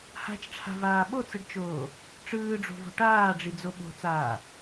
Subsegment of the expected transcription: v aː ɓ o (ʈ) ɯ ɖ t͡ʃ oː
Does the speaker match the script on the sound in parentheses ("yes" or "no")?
no